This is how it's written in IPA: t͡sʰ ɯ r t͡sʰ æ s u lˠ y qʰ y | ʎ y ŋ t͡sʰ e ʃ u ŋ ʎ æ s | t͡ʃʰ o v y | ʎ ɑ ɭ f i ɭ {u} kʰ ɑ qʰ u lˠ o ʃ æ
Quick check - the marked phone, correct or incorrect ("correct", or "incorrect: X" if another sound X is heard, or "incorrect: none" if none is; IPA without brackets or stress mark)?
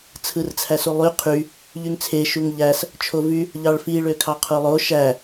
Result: incorrect: ø